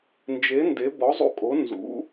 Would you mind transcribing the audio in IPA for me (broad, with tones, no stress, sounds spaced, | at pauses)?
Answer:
n d͡ʒ e˧˥ n d e˧˥ b ɔ˧˥ zˤ ṵ˥˨ kʼ o˧˥ n z ṵ˧˥